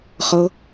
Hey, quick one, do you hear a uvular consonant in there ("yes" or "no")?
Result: yes